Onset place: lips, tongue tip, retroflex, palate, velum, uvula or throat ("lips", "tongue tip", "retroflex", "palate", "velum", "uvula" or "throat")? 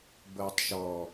lips